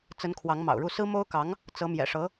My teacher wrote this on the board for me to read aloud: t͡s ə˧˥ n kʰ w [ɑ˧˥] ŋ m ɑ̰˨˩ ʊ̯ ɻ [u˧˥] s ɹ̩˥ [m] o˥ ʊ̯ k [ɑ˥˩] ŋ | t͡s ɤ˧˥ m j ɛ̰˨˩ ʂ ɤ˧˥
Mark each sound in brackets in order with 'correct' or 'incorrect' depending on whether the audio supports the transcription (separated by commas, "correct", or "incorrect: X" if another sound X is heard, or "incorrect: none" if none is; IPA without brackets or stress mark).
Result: correct, incorrect: u˥˩, correct, incorrect: ɑ˧˥